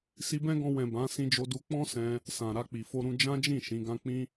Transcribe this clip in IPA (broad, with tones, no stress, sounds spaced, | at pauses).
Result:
s i˧ b ɛ̃˦ ɡ ɔ̃˧ w ɛ̃˨ b ã˨˦ s ĩ˧ d͡ʒ o˧ d u˧ k͡p ɔ̃˦ s ɛ̃˧ | s ã˨ ɾ a˧ k͡p i˨ f o˧ ɾ ũ˧ d͡ʒ ã˦ d͡ʒ ĩ˦˨ ʃ ĩ˨˦ ɡ ã˦ k͡p ĩ˦